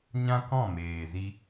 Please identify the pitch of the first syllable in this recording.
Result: high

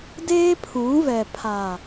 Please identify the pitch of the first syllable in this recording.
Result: high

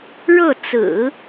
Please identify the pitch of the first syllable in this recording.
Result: falling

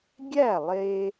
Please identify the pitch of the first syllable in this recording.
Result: falling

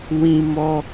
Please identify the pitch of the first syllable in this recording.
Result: high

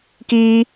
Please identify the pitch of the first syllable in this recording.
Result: high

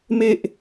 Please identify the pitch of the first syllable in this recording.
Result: low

